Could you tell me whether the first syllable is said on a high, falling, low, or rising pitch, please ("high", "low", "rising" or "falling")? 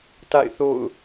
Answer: falling